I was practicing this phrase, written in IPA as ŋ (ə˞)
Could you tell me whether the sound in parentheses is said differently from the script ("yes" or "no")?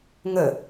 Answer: yes